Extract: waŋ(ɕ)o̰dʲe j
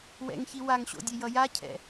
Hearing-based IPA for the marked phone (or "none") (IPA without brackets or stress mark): ɕ